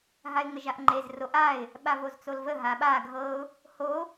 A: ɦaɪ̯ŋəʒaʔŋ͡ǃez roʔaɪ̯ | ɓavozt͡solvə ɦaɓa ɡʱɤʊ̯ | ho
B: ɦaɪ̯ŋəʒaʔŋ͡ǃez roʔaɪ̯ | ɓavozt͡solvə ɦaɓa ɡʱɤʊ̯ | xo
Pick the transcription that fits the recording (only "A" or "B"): A